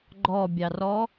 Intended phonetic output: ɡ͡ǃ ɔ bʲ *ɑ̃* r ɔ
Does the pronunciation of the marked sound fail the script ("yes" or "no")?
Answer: yes